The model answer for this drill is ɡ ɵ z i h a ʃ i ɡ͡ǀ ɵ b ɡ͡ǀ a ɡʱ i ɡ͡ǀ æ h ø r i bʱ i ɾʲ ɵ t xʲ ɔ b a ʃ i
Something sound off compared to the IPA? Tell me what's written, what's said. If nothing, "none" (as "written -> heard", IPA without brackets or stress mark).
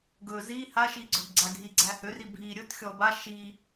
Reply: none